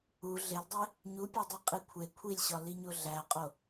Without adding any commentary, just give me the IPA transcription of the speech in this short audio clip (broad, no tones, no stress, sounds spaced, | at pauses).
u ɮ e l dˤ e | ɲ u pʲ e dˤ i qʼ i kʷʰ e kʷʰ i lʲ ɕ ɒ l i ɲ o ɮ æ qʼ o